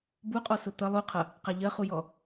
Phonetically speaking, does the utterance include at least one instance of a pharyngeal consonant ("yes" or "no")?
no